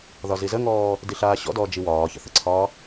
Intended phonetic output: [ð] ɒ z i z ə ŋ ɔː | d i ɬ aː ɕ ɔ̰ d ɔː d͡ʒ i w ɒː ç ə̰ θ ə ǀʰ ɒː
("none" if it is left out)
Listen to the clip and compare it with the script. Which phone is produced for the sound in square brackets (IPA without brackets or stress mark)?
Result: ð